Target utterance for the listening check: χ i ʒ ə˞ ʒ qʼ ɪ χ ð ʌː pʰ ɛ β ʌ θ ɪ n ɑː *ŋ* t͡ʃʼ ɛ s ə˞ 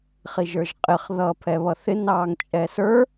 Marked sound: correct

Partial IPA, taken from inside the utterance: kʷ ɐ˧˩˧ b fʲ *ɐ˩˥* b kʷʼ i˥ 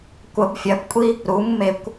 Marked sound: correct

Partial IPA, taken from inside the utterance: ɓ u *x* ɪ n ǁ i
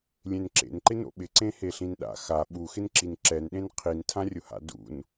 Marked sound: correct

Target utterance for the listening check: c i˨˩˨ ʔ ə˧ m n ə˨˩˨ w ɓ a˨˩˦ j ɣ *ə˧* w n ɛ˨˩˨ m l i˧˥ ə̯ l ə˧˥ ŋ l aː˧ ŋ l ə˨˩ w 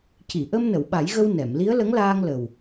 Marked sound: correct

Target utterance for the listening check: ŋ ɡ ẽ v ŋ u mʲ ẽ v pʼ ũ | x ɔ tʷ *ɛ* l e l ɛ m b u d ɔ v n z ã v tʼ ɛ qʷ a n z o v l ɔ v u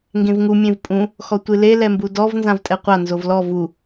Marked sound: incorrect: ɨ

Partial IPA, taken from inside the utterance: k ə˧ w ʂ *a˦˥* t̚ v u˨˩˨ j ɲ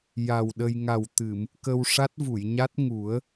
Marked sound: correct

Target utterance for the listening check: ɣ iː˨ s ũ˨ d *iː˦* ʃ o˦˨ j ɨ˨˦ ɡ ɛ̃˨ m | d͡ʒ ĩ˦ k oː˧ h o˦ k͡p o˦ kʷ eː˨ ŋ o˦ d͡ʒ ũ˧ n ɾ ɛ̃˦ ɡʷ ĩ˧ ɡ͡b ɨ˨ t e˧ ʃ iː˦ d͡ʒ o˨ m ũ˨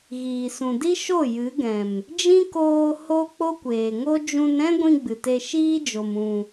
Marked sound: incorrect: i˦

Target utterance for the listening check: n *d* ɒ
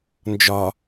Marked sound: incorrect: d͡ʒ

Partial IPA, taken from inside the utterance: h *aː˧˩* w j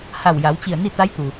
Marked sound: incorrect: a˧˩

